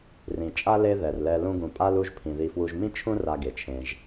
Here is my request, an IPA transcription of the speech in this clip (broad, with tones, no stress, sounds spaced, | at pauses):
r ĩ˩ t͡ʃʼ a˥ l e˦ ð ɛ˩ r l ɛ˨ l ũ˦ ɡ ũ˨ pʼ a˥ l u˦ ʒ pʰ ĩ˩ ð i˨ f w u˨ ʒ m ĩ˥ t͡ʃʰ ũ˦ r a˨ ɡ e˩ t͡ʃʰ ẽ˨ ʒ